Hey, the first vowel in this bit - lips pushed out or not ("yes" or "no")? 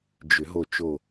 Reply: yes